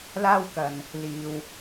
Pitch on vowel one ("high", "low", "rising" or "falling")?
high